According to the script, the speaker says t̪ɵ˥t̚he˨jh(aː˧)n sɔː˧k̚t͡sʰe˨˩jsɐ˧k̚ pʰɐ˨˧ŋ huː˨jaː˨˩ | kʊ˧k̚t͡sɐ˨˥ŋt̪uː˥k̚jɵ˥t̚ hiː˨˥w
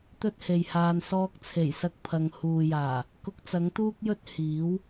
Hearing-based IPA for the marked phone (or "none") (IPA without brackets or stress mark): aː˧